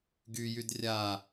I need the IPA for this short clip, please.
ɡ y j y d rʲ a

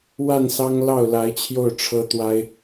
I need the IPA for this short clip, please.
w a˥˩ n s ɑ˥ ŋ l ɑ˥˩ ʊ̯ l a˧˥ ɪ̯ t͡ɕʰ j o˥˩ ʊ̯ ʈ͡ʂʰ ɤ˥ t̪ w a˥ ɪ̯

